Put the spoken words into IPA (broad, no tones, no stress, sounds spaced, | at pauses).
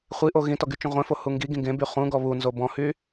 χʷ i ʔ o ɣ ĩ t ɔ ɡ y t͡ʃ ũ ʁʷ ẽ f o h u ŋ ɡ i ɡ ĩ ɡ ẽ b y χ ũ ɡ ɔ β u n z o b ɔ̃ h y